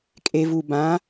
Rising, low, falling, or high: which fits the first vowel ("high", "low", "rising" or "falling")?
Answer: low